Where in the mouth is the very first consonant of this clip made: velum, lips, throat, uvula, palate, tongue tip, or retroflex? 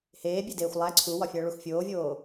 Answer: throat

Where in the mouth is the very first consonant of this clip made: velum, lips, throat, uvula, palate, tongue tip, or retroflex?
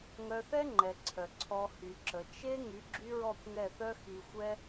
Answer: velum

